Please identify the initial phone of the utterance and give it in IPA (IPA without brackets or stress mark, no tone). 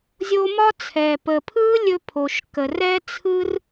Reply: zʲ